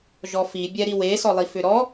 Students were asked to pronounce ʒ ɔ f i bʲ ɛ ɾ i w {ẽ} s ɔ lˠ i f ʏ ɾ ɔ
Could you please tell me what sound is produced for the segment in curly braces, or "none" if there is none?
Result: e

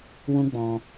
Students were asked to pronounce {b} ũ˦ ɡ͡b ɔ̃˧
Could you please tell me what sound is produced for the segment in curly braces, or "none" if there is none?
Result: w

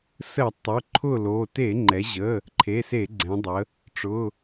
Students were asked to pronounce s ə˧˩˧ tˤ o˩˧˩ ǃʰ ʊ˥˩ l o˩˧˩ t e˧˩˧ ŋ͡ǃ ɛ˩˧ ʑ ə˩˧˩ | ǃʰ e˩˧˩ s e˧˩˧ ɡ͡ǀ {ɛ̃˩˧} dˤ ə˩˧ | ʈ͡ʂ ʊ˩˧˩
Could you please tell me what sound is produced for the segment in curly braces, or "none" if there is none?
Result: ɛ̃˩˧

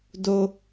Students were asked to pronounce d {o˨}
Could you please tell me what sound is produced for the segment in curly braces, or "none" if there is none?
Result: o˨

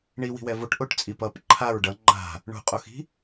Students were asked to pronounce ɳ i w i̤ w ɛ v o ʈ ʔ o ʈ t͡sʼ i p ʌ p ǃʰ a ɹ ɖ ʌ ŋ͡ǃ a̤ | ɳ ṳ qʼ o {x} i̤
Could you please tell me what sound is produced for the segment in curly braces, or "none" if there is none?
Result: x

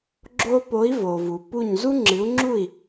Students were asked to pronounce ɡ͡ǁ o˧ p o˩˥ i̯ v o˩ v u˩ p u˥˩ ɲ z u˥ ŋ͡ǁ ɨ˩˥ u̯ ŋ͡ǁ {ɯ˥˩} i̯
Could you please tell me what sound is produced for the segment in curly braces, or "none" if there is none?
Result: u˥˩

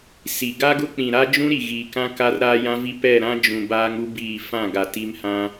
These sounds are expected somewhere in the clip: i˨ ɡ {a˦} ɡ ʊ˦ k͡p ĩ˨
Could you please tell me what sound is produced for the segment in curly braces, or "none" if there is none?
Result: a˦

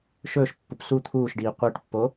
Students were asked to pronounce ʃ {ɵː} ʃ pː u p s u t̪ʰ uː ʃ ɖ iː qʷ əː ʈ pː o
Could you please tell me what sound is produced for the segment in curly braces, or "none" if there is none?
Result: ɵː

